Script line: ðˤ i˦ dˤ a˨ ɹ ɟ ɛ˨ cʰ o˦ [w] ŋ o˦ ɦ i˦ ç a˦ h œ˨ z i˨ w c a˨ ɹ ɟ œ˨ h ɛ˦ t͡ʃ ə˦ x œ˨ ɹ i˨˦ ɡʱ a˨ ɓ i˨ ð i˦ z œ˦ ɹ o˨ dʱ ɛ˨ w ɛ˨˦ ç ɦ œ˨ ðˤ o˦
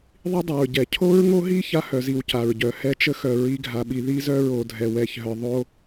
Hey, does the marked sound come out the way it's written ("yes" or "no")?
no